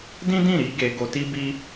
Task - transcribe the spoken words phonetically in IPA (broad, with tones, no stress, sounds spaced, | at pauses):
d ĩ˦ d ĩ˦˨ ɾ i˧ ɡ e˧ ɡ o˧ t i˦ b i˦